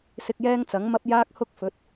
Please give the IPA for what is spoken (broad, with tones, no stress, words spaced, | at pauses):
sɪ˧k̚jɛː˥ŋt͡sɐ˨˥ŋmɐ˥p̚ jaː˥k̚hʊ˥k̚fɵ˨˥t̚